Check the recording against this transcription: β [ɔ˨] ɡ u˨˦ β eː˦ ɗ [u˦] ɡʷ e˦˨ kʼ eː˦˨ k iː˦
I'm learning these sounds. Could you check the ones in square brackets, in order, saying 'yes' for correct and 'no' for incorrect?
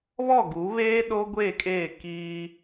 no, no

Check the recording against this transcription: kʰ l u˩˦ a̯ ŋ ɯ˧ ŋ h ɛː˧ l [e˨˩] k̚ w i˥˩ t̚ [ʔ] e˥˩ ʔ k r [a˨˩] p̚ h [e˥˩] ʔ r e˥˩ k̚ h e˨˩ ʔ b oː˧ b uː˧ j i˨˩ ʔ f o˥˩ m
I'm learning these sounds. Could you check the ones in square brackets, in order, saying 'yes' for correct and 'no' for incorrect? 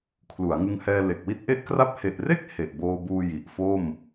yes, yes, no, no

